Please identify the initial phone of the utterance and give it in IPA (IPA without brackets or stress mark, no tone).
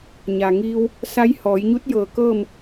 ɲ